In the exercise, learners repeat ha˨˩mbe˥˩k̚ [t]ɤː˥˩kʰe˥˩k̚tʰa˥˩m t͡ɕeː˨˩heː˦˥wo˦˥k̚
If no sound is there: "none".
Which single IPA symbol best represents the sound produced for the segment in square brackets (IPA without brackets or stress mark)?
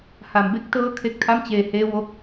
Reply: t